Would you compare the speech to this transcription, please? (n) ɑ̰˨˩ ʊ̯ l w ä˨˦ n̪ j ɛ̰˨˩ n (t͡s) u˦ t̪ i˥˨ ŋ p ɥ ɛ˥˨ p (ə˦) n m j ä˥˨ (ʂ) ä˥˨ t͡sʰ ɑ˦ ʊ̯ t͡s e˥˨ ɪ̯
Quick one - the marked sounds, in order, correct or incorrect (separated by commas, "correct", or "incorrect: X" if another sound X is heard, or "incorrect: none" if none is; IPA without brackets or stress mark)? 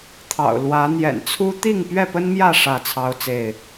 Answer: incorrect: t̪ʰ, incorrect: t͡sʰ, correct, correct